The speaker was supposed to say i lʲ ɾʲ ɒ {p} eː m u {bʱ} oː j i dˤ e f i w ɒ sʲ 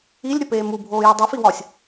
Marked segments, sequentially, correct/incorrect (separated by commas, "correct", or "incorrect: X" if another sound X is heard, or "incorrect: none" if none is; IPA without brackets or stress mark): correct, correct